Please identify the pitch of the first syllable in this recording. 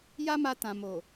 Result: high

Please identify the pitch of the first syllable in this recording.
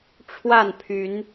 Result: falling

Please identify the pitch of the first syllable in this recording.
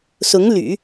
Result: rising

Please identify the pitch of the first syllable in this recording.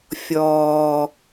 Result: high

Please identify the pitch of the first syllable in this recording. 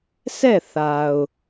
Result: falling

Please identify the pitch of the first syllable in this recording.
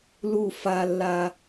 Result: falling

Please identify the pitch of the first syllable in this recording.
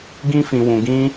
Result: high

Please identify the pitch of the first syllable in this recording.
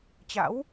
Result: rising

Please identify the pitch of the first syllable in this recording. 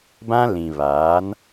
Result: high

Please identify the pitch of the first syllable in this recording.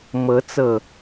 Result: rising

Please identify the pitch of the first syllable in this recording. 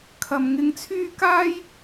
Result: low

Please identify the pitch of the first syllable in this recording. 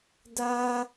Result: high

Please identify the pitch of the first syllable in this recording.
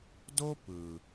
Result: high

